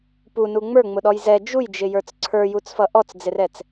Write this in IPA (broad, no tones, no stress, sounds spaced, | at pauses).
p u n u ŋ͡m ə˞ ŋ͡m ʊ ɗ ɔ j z ɛ d͡ʒ u j d͡ʒ ɪ j ə˞ t͡s ǀʰ ə˞ j u t͡s f ʌ ʔ ɔ t͡s d͡z ɪ r ɛ t͡s